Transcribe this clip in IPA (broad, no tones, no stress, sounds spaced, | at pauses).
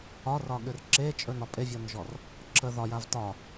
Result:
ɒ r ɒ ɠ ʏ r ǁ e t͡ʃʼ ɵ n ɒ pʼ e vʲ ɔ n ʒ ɔ r | ǁʰ ə ð ɒ j a v t ɒ